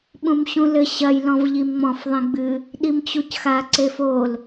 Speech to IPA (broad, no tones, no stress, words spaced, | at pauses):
ɓũmɕũlɘ ɕɐj lɔ̃vʎimŋ͡mɔ̃f ðˤĩɡ͡bɨ | ɗimt͡ɕucxa ǀefol